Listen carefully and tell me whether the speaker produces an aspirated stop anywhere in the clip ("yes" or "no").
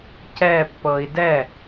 no